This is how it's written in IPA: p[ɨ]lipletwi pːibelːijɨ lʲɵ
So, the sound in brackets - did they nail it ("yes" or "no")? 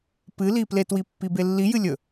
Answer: yes